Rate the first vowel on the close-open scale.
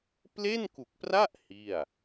mid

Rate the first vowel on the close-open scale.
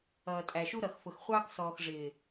mid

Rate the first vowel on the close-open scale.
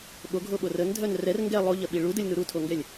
mid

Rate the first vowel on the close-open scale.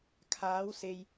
open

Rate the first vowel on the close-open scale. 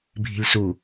close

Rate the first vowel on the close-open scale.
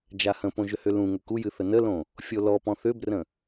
open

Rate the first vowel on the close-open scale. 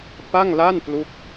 open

